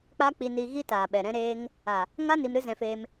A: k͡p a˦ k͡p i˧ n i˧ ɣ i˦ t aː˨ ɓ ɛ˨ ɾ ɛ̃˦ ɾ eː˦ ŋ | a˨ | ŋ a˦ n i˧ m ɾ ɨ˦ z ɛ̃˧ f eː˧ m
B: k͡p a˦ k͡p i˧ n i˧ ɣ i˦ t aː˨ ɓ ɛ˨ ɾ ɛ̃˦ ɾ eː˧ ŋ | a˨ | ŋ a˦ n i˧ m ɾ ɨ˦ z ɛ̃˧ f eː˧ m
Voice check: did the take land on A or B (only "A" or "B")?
A